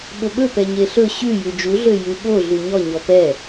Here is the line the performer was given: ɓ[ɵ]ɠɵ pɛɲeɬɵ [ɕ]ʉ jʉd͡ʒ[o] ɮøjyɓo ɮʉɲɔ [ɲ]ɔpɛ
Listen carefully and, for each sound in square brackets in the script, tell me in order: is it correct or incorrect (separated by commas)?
correct, correct, incorrect, correct